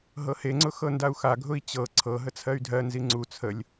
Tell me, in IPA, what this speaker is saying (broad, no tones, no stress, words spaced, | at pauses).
ɦɤheŋ͡ǀʊ xɤndau̯xaɡʱʊi̯ t͡ɕɤ ǀʰɤɦə t͡sʰɜy̯dʱɜnzi ŋ͡ǀu t͡sʰəlʲ